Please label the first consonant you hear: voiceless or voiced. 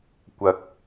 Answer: voiceless